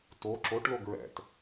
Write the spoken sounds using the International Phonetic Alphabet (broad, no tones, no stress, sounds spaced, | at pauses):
t o ǁ o ʈ l o ɡ ɹ ɛ̰ t